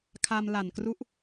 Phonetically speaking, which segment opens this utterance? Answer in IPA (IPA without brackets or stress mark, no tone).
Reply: kʰ